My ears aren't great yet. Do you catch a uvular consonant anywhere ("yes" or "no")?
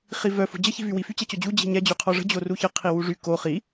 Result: yes